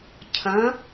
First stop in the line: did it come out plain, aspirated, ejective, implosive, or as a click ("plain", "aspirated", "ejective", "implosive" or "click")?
aspirated